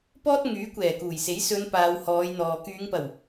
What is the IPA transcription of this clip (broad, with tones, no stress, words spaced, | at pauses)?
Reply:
pɔː˥t̚ ŋyː˨˥kʷɛː˨˩kuː˨˩jse˨˥j sɵ˨˧n paː˨˧whɔː˨˧jn̪ɔː˨ kyː˨˧ŋpɐ˨˩w